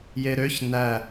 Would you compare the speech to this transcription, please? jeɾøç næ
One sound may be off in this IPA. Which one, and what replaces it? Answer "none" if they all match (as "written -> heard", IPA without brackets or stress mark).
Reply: none